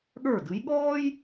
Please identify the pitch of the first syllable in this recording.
falling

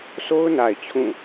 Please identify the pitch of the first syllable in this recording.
high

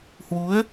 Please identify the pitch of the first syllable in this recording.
rising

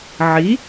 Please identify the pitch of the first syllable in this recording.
rising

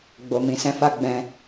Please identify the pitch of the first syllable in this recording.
low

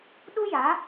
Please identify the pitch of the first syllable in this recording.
high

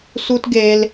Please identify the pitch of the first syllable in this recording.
high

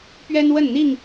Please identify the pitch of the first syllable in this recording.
high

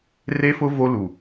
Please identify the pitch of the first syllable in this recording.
high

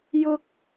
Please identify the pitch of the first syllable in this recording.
high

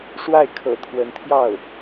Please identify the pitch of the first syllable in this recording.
falling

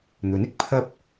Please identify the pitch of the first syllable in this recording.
rising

